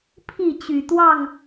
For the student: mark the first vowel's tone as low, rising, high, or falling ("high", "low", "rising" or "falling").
falling